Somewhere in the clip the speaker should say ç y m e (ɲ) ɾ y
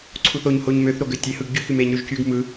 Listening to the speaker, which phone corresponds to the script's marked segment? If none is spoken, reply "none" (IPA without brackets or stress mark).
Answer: ɲ